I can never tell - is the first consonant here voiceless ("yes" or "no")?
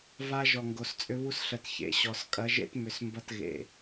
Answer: no